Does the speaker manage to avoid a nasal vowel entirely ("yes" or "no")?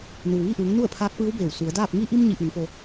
yes